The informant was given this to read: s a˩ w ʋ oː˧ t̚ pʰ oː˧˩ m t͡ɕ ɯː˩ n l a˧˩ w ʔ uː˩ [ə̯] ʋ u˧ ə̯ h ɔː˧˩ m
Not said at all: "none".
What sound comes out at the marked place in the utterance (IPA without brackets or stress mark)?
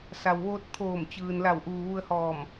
none